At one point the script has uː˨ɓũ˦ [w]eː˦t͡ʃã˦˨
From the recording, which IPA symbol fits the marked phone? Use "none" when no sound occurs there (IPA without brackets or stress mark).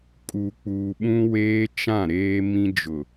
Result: w